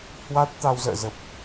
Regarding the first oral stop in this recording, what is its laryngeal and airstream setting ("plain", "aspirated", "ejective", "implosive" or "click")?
plain